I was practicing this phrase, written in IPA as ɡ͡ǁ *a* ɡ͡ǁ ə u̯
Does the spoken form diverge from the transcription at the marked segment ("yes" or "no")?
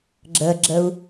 yes